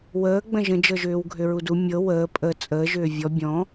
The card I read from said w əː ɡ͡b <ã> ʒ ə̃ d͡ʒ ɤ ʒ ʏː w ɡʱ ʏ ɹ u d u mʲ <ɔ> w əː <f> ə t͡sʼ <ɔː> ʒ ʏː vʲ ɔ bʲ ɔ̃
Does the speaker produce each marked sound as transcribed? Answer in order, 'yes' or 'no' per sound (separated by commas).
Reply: no, no, no, no